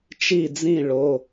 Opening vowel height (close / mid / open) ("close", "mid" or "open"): close